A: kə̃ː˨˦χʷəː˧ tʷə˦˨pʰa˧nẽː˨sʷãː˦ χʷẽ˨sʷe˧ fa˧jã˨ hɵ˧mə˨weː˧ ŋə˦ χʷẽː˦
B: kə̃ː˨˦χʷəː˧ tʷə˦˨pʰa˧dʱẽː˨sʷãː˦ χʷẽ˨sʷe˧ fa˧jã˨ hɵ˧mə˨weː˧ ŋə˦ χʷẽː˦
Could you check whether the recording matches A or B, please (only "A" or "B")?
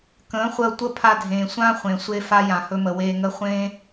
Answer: B